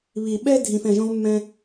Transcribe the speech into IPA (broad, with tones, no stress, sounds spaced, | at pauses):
β i˨ ɓ ɛ˦ dʱ ĩ˨ f ɛ̃˨ ʒ õ˦ v mː ɛ̃˧